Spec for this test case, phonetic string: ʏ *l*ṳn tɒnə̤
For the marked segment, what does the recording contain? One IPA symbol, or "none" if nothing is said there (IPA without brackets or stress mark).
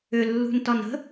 lː